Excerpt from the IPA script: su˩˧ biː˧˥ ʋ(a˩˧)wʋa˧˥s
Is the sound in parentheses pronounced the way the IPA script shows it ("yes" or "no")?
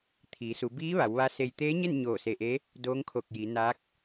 yes